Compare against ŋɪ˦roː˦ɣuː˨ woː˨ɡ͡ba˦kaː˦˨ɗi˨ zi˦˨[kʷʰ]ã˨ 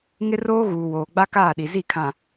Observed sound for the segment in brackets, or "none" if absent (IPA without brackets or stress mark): kʰ